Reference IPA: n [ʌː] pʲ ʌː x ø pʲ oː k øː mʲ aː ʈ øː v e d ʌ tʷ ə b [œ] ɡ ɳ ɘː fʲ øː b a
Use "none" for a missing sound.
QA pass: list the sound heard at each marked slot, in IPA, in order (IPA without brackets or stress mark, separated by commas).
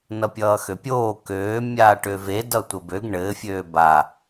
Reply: ʌ, ø